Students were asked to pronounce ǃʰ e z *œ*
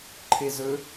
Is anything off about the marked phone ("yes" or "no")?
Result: yes